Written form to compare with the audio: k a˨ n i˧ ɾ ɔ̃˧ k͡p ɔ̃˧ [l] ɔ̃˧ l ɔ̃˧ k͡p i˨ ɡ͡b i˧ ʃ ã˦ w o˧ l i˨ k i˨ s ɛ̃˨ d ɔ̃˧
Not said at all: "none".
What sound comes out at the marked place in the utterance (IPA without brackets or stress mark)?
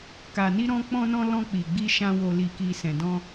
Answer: n